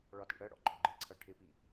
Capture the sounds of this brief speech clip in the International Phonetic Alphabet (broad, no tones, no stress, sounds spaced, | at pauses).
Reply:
ɭ ɒ t ḭ ɽ ɜ ɽ ɔ̰ ɡ͡ǃ ɔ ɡ͡ǃ ɪ ǀʰ ʌ ʈʰ ɪ p i